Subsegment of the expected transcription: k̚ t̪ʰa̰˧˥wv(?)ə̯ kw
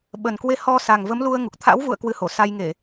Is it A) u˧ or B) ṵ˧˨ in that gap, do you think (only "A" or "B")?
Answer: B